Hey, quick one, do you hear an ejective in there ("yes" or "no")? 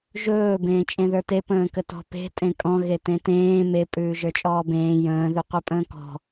yes